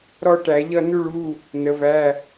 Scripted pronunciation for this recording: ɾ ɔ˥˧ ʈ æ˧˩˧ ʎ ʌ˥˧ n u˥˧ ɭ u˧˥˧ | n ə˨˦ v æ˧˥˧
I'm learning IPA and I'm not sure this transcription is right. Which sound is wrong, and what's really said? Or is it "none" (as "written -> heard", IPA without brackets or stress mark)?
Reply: none